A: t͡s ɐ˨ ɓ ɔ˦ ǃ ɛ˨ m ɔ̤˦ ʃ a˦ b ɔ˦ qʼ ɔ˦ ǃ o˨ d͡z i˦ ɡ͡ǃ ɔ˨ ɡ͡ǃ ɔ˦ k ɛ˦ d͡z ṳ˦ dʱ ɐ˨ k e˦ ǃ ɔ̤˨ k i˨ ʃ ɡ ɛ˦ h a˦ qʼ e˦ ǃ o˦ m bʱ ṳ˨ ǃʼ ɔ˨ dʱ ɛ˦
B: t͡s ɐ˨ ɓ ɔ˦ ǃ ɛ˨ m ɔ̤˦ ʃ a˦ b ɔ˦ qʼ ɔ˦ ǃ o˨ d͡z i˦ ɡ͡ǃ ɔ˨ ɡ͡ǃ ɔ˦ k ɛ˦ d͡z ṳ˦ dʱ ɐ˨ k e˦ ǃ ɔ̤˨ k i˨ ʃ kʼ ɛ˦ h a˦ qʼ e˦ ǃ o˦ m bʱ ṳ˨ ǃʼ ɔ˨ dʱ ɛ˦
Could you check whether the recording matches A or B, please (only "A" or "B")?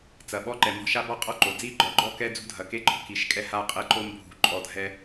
B